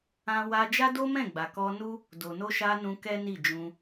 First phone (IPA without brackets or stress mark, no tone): ã